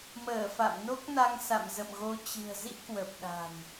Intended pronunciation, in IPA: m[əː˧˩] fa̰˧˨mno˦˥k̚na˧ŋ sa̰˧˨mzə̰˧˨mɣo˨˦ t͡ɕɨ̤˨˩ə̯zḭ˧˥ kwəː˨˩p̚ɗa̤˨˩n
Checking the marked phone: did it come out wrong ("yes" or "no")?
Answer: no